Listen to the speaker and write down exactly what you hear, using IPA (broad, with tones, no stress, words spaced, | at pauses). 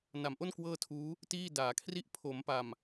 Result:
na˩˦mʔo˥˩n kwɤː˥˩tʰuː˦˥ | tiː˥˩daː˩˦kʰri˥˩ʔ pʰo˩˦mpa˨˩m